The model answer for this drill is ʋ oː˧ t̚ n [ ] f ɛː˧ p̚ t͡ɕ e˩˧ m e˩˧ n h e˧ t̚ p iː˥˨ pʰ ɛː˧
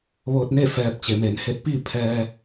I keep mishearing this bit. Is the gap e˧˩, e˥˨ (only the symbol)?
e˥˨